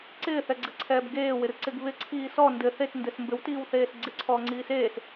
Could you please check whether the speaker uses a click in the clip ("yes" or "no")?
yes